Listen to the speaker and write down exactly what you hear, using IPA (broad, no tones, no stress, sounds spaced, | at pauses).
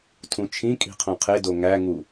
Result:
tʰ ũ t͡ʃʰ ĩ kʼ i̤ qʰ õ qʰ e d o ŋ æ ŋ u